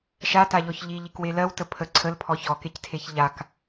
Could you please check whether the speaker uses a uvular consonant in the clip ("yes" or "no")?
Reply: no